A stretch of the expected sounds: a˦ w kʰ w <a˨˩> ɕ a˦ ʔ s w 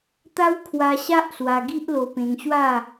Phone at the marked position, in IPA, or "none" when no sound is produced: a˧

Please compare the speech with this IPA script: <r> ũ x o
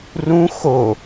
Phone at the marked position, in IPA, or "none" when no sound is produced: r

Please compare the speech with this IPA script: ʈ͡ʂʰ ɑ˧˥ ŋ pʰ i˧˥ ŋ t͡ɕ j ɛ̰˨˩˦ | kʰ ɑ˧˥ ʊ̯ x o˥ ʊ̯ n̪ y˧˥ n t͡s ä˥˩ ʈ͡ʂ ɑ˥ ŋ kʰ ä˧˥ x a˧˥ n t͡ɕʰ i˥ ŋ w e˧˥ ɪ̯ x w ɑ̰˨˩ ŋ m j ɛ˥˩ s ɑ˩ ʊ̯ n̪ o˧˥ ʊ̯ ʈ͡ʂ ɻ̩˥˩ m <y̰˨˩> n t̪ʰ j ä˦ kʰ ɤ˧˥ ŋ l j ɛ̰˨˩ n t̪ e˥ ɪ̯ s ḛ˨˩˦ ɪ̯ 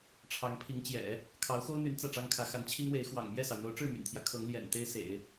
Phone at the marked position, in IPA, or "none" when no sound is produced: y̰˨˩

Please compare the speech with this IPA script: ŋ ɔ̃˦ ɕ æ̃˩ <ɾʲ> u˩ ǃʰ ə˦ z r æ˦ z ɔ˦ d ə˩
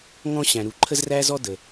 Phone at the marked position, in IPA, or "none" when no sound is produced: ɾ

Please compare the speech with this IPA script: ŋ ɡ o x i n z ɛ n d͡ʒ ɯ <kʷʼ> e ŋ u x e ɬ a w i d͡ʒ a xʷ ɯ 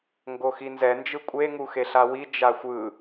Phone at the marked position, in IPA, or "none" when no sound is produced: kʷʼ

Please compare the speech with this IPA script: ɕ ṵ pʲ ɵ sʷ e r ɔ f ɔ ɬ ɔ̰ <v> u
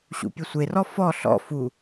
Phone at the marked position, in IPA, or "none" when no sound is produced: f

